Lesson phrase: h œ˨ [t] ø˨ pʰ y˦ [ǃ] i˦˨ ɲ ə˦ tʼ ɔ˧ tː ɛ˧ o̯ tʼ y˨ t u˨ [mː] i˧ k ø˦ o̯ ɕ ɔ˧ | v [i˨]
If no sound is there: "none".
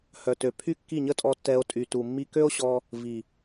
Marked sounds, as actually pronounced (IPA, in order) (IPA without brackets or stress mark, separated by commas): t, kː, mː, i˨